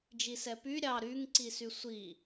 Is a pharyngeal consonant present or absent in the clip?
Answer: absent